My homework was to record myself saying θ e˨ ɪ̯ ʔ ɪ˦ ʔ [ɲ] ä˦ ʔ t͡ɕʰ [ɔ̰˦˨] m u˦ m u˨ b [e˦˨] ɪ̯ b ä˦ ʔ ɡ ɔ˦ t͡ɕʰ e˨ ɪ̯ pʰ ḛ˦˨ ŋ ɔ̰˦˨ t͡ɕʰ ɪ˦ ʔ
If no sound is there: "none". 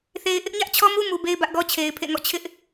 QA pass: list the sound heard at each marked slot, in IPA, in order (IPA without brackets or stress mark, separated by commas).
ɲ, ɔ˦, e˦